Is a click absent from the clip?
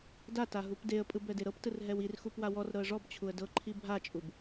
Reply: no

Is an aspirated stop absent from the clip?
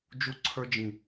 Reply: no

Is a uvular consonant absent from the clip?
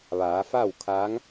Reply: yes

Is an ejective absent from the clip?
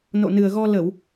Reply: yes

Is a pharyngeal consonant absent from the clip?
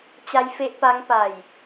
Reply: yes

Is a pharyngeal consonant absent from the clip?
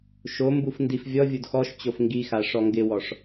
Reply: yes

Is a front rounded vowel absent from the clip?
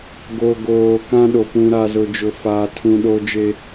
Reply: yes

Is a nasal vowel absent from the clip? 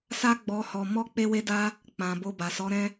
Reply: no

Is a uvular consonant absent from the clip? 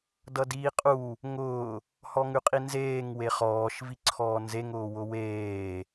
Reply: no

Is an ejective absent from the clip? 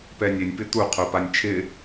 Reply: yes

